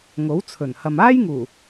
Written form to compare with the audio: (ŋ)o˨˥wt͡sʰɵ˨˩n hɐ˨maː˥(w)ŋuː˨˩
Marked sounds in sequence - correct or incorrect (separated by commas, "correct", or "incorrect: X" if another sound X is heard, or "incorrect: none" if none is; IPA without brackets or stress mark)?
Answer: correct, incorrect: j